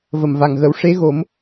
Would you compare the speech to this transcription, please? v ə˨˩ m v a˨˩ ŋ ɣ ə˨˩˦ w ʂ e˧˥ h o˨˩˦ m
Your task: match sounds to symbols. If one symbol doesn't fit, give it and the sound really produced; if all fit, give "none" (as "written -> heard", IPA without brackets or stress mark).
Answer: h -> ɣ